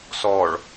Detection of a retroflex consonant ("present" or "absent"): present